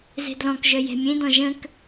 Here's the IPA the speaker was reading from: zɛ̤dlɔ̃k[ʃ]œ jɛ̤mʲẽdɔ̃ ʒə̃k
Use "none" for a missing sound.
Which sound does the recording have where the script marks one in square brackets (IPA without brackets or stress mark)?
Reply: ʒ